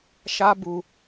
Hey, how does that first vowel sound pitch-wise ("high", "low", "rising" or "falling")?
high